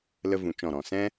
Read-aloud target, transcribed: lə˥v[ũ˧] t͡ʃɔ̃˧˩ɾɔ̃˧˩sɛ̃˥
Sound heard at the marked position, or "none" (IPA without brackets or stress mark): ũ˧